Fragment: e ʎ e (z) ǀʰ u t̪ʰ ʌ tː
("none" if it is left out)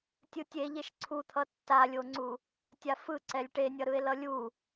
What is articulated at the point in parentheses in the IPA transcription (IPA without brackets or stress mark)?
ʃ